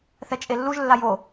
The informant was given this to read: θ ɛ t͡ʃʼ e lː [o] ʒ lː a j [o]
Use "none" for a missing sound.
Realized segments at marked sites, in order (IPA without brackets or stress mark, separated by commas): u, o